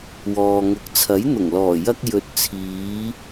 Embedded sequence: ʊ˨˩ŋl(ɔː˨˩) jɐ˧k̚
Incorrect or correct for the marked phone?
correct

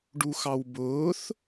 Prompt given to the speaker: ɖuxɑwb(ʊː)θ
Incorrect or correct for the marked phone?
correct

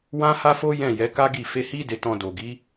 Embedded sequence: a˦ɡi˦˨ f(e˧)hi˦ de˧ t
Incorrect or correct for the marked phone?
correct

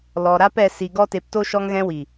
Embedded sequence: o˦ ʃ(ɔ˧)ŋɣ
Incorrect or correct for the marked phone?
correct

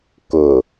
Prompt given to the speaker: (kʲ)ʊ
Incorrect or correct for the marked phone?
incorrect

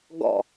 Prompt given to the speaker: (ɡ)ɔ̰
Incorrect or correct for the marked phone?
correct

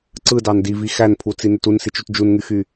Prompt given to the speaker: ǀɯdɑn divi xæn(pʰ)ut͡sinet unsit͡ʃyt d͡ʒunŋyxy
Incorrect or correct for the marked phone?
correct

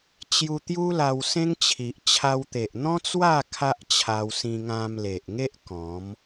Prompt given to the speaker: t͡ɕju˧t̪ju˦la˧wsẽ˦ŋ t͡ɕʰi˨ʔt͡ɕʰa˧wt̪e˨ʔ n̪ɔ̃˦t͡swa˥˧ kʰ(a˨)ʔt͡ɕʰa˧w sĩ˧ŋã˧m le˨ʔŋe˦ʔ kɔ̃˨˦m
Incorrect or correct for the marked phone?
incorrect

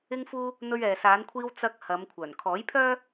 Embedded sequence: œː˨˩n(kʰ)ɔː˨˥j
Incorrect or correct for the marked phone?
correct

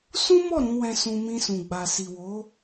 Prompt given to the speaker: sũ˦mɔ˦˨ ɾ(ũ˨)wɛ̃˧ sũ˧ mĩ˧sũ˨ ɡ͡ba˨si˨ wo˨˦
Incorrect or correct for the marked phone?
incorrect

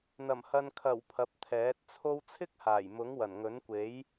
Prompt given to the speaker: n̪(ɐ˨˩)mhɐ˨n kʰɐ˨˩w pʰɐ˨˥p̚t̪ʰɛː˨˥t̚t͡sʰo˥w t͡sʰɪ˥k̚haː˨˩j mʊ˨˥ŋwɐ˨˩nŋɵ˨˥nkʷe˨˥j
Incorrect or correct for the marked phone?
correct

